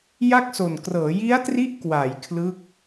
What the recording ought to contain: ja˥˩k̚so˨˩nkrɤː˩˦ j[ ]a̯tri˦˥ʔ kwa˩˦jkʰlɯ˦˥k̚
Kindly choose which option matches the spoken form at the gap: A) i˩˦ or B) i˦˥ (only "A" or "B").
B